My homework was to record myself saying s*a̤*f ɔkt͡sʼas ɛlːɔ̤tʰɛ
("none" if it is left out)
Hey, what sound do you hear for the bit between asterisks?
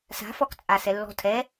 a̤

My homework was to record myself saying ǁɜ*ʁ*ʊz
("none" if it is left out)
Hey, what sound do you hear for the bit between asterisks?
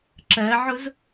ʕ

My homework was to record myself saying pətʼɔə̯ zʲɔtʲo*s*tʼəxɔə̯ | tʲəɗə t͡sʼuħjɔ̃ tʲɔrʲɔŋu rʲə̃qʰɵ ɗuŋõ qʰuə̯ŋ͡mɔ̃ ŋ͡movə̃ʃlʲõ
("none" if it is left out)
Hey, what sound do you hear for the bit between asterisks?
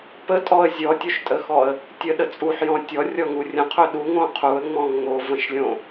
ʃ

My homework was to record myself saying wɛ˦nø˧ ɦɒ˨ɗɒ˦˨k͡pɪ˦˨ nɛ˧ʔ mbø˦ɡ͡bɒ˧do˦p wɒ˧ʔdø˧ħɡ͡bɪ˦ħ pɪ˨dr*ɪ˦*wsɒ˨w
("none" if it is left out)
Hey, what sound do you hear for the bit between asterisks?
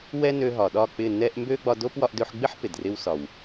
ɪ˦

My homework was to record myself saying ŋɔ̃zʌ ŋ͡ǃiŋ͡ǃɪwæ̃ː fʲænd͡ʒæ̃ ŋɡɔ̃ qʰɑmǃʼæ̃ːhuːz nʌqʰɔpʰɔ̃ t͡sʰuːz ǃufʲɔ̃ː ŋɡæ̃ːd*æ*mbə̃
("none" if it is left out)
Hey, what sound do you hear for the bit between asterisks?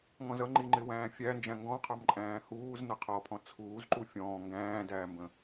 æː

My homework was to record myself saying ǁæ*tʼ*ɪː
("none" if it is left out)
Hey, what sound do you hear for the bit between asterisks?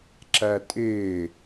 tʼ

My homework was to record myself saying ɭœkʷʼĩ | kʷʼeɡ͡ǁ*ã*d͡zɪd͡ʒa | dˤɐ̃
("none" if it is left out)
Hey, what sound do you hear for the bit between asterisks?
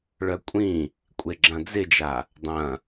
ɐ̃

